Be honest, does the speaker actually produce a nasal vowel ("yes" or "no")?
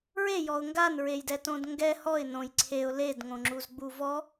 yes